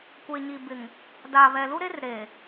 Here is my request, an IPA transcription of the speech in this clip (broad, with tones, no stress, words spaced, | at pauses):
kʷeː˨ɲi˨bɪ˨ŋ | daː˨βɛ˨lu˦ɾe˦r ɾe˨